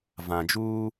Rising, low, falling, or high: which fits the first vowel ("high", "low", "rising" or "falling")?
low